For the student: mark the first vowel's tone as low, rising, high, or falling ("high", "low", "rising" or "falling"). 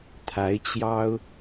rising